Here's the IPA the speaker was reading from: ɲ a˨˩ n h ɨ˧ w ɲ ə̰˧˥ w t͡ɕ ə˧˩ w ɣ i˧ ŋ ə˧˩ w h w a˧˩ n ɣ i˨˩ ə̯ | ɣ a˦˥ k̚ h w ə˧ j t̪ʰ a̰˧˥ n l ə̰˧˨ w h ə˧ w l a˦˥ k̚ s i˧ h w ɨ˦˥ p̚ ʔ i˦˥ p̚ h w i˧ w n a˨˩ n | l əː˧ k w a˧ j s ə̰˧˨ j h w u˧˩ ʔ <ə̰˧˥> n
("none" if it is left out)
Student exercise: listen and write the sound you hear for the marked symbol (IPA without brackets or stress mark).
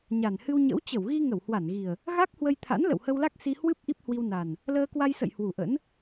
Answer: ə̰˧˥